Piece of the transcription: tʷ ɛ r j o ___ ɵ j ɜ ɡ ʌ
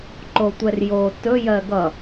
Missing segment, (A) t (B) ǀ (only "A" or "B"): A